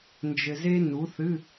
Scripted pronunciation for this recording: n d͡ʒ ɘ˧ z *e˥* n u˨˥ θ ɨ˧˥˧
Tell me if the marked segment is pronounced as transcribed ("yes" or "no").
yes